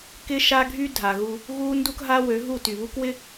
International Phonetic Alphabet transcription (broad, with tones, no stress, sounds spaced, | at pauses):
k ɪ˦ ʃ a˦ ɡʱ y˦ dʱ a˨ ɣ u˦ | ɣ u˦ n d u˦ k ɦ a˦ w ø˨˦ ɦ u˦˨ t y˨ β u˦ k w ɪ˦